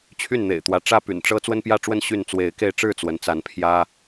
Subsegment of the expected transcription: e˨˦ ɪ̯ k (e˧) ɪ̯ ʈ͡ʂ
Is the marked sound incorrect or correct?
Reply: correct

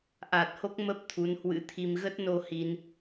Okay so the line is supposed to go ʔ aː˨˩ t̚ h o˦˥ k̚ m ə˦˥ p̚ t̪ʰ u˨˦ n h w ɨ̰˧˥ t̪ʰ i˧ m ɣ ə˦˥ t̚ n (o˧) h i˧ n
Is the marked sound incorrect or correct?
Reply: correct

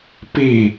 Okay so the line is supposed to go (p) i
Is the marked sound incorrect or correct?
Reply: correct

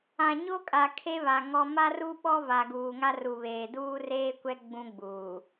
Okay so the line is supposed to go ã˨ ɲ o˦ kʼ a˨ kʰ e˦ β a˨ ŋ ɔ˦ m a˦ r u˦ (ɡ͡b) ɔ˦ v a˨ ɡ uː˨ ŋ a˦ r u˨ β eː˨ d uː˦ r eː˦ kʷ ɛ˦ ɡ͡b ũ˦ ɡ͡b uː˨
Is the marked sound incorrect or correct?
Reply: incorrect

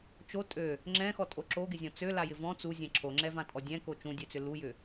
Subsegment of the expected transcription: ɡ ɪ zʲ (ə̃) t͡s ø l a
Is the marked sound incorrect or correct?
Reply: incorrect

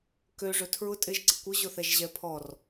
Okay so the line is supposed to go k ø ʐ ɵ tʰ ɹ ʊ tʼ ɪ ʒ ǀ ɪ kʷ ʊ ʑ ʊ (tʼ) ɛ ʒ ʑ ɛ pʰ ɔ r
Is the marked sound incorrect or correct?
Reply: incorrect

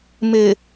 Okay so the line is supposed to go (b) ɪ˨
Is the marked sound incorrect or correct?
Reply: incorrect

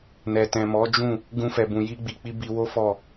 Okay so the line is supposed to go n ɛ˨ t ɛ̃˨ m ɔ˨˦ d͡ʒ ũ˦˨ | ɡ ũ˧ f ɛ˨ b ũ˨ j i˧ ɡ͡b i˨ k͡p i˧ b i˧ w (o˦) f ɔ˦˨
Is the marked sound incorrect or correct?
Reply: correct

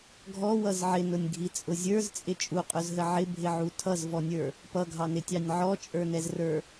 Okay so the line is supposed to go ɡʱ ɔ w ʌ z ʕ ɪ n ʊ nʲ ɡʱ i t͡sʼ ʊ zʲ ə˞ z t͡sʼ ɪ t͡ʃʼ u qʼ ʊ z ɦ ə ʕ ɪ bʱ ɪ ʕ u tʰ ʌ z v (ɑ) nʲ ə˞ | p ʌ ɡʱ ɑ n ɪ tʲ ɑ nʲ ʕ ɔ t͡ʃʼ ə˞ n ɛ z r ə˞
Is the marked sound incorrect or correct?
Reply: incorrect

